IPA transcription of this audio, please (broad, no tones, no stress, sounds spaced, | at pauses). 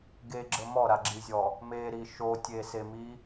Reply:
ɡ e ɡ͡ǁ ə m ɔ ɾ a ɡ͡ǁ i zʲ ɔ | m e ɾ i ʃ o tʲ e s e m i